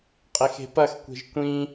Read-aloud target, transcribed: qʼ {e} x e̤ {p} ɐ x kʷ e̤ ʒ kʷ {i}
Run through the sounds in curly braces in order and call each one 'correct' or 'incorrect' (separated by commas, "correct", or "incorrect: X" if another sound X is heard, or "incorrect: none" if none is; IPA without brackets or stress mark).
correct, correct, incorrect: ĩ